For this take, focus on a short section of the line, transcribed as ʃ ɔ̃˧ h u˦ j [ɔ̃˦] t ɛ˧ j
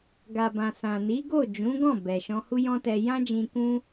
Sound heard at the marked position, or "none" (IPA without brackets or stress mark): ɔ̃˦